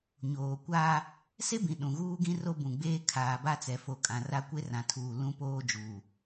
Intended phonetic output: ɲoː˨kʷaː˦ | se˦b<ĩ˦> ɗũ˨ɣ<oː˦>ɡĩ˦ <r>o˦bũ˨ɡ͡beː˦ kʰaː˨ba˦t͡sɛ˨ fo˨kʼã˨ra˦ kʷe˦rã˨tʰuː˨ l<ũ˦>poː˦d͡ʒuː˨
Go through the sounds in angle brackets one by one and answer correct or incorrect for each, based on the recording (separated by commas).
incorrect, incorrect, correct, correct